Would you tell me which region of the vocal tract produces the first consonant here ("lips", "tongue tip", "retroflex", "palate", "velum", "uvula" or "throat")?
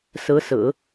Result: tongue tip